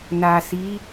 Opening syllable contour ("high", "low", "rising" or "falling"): low